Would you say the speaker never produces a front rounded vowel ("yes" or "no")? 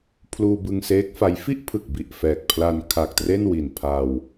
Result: yes